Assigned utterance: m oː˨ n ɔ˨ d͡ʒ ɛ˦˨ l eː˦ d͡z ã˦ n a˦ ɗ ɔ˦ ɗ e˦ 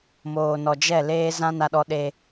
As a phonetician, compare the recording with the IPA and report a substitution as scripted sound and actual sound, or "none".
d͡z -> z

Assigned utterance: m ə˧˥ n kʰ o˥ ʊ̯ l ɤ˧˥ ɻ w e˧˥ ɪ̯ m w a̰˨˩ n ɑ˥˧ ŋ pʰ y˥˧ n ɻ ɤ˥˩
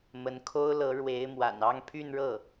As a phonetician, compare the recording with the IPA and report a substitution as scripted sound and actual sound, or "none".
none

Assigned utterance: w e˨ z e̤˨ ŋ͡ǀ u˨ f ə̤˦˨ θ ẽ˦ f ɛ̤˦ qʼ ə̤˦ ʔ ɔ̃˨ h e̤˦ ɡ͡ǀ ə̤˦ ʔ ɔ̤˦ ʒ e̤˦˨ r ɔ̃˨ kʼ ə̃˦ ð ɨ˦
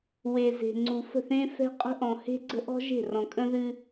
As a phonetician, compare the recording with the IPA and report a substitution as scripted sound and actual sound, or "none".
none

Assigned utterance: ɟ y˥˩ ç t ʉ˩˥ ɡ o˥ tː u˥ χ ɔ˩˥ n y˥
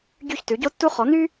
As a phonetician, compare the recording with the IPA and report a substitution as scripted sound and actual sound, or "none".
ɡ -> ɟ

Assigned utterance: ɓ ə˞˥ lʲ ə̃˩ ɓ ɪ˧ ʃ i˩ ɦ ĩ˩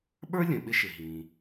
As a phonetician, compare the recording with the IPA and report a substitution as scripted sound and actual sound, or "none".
i˩ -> ɪ˩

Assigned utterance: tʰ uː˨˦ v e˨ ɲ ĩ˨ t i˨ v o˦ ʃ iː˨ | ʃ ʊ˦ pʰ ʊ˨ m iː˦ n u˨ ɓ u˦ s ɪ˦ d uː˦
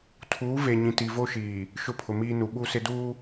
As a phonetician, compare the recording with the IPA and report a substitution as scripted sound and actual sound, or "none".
none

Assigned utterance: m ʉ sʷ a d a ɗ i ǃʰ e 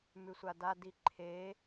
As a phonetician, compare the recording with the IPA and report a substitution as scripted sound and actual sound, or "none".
ɗ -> d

